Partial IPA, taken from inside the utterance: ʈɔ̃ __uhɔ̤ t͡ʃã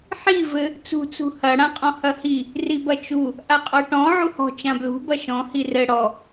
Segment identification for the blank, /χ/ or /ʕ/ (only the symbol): ʕ